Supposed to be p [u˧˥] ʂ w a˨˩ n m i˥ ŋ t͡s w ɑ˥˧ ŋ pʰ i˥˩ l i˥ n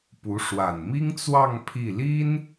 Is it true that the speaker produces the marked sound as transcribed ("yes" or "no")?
yes